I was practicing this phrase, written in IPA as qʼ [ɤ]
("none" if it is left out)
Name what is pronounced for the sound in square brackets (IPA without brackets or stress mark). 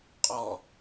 ɔ